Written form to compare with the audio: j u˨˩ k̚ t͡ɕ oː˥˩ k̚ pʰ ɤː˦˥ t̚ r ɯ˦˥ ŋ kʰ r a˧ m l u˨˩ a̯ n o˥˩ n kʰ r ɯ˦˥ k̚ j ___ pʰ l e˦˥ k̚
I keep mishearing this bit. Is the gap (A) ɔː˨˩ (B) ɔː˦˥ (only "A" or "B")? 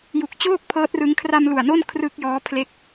B